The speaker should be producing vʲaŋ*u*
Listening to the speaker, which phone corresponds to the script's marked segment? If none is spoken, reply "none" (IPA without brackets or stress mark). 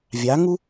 u